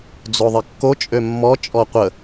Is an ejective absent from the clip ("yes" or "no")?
no